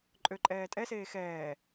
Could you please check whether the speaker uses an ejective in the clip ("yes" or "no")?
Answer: yes